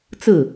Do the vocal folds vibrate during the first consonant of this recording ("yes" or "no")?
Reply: no